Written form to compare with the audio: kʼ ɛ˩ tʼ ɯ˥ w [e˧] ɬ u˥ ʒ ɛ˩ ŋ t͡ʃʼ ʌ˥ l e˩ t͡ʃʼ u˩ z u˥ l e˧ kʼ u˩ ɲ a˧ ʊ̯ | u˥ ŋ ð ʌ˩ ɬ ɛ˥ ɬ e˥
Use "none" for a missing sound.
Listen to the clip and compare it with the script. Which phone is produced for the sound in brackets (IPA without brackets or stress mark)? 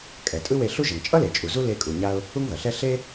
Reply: e˧